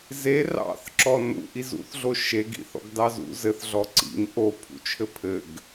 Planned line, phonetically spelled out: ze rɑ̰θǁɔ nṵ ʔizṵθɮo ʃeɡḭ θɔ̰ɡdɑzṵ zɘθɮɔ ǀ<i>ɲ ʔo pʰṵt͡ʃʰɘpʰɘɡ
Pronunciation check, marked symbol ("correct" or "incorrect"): incorrect